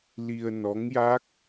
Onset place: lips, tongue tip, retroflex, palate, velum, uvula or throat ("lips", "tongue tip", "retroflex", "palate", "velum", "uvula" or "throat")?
tongue tip